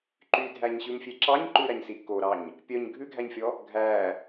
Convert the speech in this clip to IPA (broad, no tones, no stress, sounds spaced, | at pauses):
ǃ y dʱ æ ɲ ɕ ʉ m fʲ e ǁ ɑ ɲ ǃ ʉ ɾ æ ɲ s i k o ɾ ɑ ɲ | pʲ œ ɲ ɡʱ ʉ ɡʱ æ ɲ fʲ ɔ | ɡʱ æ